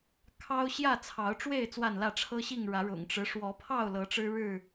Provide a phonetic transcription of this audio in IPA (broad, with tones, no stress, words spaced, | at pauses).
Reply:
kʰɑ˦ʊ̯ ɕjä˥˨t͡sʰɑ˨˦ʊ̯ʈ͡ʂwe˥˨ɪ̯ t͡swa˥˨nlä˥˨ ʈ͡ʂʰɤ˦ɕi˥˨ŋɻä˨˦ ɻʊ̰˨˩ŋʈ͡ʂɻ̩˦ ʂwɔ˨˦pʰɑ˥˨ʊ̯lɤ˨˦ ʈ͡ʂɻ̩˦ɻɻ̩˥˨